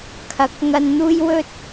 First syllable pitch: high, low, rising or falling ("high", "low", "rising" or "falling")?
rising